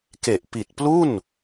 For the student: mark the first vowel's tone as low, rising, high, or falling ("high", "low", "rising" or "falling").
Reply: low